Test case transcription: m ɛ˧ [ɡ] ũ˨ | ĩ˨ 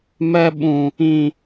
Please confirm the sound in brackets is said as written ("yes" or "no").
no